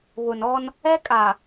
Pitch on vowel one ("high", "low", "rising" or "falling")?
low